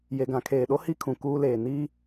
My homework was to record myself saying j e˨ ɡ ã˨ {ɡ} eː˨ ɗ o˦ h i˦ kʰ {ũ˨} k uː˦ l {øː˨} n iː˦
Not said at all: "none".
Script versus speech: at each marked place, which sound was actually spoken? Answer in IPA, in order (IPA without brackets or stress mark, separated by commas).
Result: kʰ, ũ˨, eː˨